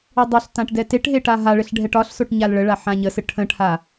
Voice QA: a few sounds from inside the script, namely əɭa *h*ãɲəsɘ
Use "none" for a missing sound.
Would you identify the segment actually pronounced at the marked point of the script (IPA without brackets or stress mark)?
ħ